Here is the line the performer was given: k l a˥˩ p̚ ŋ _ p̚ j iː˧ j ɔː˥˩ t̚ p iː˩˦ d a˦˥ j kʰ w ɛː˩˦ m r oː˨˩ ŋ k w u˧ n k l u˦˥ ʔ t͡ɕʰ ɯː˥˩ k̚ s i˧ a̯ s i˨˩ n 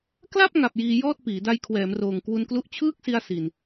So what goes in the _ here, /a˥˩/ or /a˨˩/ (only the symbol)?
a˨˩